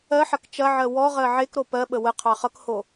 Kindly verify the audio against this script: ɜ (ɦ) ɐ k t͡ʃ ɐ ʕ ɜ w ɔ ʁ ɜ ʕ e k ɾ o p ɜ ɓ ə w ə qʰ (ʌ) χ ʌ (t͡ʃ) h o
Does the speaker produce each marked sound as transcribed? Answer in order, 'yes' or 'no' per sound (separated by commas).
no, no, no